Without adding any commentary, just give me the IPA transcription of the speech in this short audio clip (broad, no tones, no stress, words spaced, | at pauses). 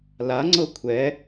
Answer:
laŋ͡ǀɤ kʷʰɛ